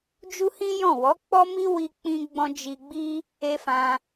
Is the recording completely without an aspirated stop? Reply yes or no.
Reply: yes